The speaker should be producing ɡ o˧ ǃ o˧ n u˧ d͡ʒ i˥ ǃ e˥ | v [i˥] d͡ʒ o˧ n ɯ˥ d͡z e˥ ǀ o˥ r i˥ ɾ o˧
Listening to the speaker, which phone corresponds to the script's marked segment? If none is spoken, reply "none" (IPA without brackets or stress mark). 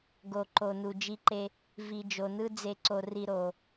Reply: i˧